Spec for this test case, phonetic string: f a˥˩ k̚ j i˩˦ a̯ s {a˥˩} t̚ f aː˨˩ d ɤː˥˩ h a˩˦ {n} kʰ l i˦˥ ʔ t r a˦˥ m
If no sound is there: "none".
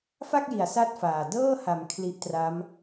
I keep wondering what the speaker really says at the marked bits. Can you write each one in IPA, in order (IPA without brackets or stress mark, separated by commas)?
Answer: a˥˩, m